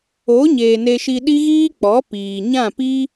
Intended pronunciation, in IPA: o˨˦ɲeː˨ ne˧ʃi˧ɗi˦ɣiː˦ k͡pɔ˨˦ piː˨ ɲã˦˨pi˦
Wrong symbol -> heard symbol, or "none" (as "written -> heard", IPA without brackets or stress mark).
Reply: none